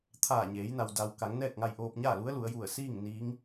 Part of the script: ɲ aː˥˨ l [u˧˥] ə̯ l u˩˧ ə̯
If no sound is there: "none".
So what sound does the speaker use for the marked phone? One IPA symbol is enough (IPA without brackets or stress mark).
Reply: u˧˥